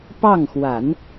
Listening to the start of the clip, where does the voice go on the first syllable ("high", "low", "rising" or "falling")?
falling